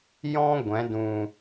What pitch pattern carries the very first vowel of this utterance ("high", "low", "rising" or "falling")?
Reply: high